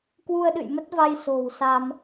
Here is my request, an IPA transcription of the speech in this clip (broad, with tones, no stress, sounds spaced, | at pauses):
k w u˧ ə̯ ɗ ɨ̰˧˨ j m ə˦˥ t̚ v a˧ j s o̤˨˩ w s a˧ m